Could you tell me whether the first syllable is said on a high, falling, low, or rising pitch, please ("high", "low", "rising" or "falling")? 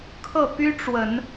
falling